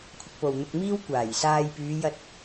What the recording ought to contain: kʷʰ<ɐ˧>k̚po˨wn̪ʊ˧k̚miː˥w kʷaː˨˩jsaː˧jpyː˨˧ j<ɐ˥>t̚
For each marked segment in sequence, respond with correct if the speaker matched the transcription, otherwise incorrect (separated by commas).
correct, incorrect